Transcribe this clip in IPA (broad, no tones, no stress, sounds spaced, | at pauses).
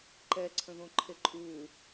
ǃ ɛ ǀʰ ə̃ ð õ ǃʰ e ǃʼ u